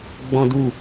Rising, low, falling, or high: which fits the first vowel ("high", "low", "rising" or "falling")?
high